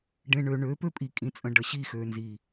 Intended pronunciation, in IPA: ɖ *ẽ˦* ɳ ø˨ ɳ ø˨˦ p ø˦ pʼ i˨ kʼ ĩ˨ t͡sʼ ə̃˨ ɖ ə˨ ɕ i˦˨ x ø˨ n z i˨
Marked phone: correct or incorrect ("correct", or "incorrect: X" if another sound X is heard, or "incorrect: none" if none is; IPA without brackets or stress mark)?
incorrect: ẽ˨